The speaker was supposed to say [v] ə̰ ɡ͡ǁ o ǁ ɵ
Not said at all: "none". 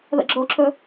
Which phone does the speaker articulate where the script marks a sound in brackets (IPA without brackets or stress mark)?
ð